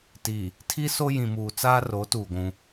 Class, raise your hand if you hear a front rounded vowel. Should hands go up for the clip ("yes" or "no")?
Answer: no